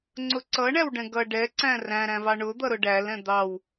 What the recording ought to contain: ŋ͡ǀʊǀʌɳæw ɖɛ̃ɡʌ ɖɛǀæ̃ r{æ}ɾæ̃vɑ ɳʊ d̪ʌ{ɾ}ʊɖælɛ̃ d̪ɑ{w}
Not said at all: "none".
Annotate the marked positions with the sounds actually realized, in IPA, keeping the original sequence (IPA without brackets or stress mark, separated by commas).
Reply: æ̃, ɾ, w